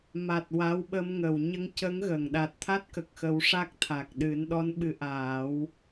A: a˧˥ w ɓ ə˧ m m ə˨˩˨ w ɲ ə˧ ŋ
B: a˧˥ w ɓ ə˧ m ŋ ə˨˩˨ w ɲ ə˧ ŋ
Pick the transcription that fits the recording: B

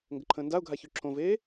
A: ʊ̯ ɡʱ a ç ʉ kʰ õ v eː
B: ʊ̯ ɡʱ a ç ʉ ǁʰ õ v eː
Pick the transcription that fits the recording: B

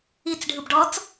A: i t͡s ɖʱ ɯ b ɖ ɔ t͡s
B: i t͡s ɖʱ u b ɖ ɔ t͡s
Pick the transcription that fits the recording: A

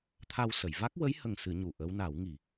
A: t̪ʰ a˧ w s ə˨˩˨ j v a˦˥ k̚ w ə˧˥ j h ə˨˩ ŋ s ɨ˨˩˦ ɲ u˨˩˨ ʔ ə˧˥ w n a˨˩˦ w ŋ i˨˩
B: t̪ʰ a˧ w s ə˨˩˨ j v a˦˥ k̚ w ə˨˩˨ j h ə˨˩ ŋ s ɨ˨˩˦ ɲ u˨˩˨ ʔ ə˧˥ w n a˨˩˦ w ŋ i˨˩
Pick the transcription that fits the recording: A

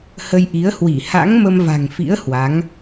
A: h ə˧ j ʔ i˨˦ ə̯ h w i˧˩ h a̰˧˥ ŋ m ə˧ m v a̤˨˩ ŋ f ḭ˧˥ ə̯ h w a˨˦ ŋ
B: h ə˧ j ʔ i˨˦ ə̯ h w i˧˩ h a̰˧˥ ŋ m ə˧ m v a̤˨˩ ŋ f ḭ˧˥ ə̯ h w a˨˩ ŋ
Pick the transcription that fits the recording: A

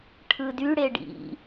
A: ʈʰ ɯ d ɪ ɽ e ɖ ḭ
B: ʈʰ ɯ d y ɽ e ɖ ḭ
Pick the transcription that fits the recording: B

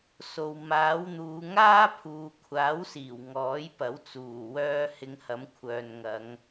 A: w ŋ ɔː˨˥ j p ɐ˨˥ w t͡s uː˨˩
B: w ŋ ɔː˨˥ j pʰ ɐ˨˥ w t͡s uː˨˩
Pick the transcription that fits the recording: A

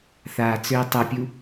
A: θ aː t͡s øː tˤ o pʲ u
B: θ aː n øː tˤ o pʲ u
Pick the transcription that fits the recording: A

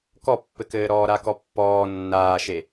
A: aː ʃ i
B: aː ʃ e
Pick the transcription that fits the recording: B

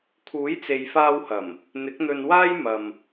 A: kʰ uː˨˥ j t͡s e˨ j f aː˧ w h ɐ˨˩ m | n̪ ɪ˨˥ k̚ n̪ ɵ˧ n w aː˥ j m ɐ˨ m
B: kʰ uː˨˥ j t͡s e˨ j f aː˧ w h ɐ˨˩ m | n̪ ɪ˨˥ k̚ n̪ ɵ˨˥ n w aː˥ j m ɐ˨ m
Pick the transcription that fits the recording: A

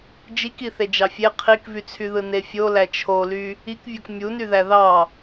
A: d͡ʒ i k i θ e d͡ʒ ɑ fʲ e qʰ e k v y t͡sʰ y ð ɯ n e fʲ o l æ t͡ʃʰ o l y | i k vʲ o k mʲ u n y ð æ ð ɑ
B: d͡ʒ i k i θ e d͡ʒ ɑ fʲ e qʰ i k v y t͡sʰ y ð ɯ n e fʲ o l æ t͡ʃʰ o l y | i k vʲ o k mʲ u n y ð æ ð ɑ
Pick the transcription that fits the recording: B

